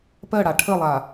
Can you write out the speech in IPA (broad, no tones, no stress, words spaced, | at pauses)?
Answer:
pɜɽa ʈʰəlˠa